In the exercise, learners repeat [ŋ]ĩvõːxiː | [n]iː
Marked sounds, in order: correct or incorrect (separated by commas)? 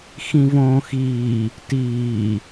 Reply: incorrect, incorrect